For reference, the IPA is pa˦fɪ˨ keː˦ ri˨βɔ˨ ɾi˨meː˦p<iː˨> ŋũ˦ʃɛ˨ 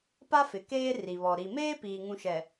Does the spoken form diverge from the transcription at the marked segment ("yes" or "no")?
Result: no